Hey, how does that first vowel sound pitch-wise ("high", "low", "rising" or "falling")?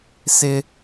high